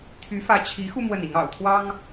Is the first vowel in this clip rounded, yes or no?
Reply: yes